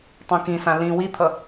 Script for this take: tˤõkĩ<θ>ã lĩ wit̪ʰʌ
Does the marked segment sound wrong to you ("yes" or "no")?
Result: yes